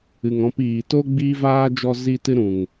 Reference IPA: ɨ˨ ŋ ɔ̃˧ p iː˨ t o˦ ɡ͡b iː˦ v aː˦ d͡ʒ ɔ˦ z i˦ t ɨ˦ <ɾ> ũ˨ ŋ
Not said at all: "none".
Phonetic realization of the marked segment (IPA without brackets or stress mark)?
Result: ɾ